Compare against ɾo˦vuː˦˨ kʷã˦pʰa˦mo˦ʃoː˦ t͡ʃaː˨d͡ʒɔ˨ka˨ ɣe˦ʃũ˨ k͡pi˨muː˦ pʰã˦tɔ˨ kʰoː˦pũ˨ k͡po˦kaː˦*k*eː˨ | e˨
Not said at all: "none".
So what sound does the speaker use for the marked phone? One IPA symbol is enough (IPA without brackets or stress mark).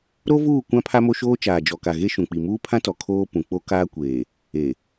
kʷ